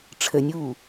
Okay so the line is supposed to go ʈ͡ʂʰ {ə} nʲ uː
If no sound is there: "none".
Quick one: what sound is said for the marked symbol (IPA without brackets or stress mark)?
ə